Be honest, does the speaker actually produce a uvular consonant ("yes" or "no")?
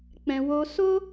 no